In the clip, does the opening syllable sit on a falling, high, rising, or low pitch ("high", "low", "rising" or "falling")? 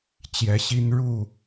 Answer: rising